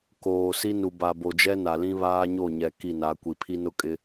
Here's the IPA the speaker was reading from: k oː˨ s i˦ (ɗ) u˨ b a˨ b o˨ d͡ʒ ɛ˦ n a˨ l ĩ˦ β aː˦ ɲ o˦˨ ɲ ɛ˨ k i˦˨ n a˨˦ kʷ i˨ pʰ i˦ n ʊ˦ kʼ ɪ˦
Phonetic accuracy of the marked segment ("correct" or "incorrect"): incorrect